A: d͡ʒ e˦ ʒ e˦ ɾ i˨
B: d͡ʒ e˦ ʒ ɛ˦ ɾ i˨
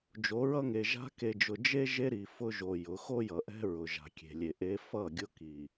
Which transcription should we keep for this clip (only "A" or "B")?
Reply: A